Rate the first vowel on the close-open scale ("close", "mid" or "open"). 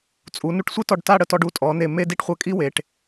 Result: close